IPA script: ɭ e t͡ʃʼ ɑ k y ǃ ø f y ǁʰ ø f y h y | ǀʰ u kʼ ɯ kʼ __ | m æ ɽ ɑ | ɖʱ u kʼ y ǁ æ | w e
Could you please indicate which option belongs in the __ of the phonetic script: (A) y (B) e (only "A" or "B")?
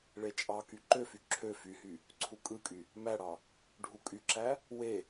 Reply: A